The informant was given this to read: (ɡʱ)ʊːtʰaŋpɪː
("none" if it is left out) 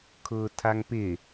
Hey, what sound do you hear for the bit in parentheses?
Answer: kʰ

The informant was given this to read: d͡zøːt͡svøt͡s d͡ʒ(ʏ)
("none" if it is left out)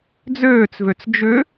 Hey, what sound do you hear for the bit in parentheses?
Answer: ʏ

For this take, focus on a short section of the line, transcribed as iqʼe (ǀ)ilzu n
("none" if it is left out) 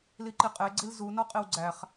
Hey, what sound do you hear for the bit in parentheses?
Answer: ɡ͡ǀ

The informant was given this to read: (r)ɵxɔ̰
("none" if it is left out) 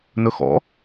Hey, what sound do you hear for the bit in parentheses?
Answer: n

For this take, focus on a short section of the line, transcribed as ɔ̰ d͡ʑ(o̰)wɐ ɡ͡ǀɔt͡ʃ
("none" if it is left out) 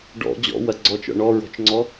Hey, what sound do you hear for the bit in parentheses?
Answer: ɔ̰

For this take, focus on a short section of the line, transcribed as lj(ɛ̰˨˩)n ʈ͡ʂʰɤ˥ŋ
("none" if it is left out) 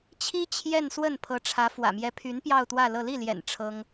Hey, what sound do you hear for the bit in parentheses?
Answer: ɛ̰˨˩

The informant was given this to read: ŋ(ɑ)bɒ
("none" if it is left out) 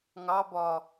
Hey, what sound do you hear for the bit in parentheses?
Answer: ɑ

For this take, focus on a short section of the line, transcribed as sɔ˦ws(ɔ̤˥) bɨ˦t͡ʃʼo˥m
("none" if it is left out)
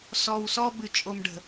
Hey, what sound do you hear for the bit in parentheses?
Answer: ɔ˥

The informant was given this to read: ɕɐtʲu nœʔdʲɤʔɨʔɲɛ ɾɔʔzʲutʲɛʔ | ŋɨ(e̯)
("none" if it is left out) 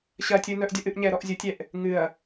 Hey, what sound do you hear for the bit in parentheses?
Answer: ɐ̯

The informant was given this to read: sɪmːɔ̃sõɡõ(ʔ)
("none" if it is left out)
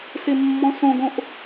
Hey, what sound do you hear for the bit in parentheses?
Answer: ʔ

